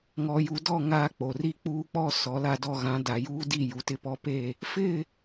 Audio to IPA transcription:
ŋ ɔ˨ j u˨ d ɔ˦˨ ŋ aː˦ k͡p o˨ r i˦ k͡p uː˦ k͡p ɔ˦ s ɔ˨˦ l a˦ d ɔ˦ ɣ ã˨˦ d a˨ j uː˦ d i˦˨ j u˨ t ɪ˦ p ɔ˦ p e˦˨ | f ɪ˦˨

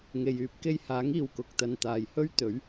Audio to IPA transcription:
ŋ e˨ j yː˨˥ p̚ k e˧ j h aː˨˥ ŋ iː˨ w k ʊ˨ k̚ t̪ ɐ˨ n t̪ aː˨ j h ɵ˥ ɥ t̪ ɵ˨˥ ɥ

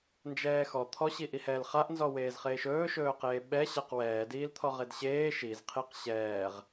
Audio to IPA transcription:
n d͡ʒ ɛː x ɔ t̪ʰ ɔ ɕ i ʔ i h ɛː l χ a ʔ n z ɔ w eː z χ eː ʃ ɵː ʃ ɵː q eː ɓ ɛ ɕ a q w ɛː d iː l t̪ʰ ɔ ʁ e d ɕ eː ʃ i z qʰ i q ɕ ɛː ʁ

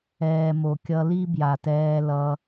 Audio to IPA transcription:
ɛː˨ m o˨ kʲ ʌ˧ l i˦ b j a˨ t ɛː˧ l ʌ˧

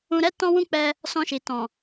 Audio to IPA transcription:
ũ˧ ɾ ɛ˦ t ɔ̃˦ w ũ˦ k͡p ɛ˧ | s ɔ̃˧ ʃ i˨ t ɔ̃˨

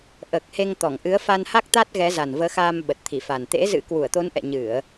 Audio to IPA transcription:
ʔ əː˨˩ k̚ h e˧ ŋ t̪ ɔ˧˩ ŋ ʔ ɨ˨˦ ə̯ f a˧ n h a˦˥ k̚ t̪ a˦˥ t̚ ɣ ɛ˨˦ z a˨˩ n v əː˨˦ x aː˧ m ɓ ə˨˩ t̚ t̪ʰ i˧˩ f a˨˩ n t̪ ḛ˧˥ z ɨ̰˧˥ k w u˧˩ ə̯ t̪ o˨˦ n ʔ ɛ̰˧˨ ɲ ɨ˧˩˨ ə̯

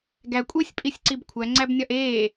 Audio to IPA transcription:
ɡ æ kʷʼ e sʲ pʼ i sʲ ǀ i b kʷʰ æ ŋ͡ǀ æ b nʲ ɒ ʔ eː

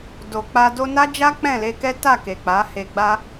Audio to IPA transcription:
d o˨ k͡p a˧ d o˧ n a˦ d͡ʒ a˦ k͡p ɛ̃˦˨ l e˧ k ɛ˦ t a˦˨ k e˨ k͡p a˨˦ h e˧ ɡ͡b a˦

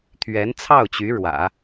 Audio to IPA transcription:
t̪ʰ ɥ ɛ˧˥ n t͡sʰ ɑ˥˩ ʊ̯ t͡ɕ y˧˥ ɻ w ä̰˨˩˦

